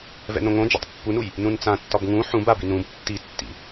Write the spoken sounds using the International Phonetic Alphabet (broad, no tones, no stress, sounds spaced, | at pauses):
v ɛ̰ n õ ŋ õ d͡ʒ ɛ̰ tˤ pː u n u j | n ũ n t͡s ã tː ɒ b ŋ ũ ħ ũ b a b i n ũ b tː i tː ḭ